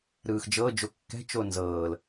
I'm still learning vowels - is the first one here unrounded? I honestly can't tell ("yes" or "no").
yes